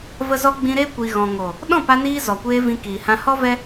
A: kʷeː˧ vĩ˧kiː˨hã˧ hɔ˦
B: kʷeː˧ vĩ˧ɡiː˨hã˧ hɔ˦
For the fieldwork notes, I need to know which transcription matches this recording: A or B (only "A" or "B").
A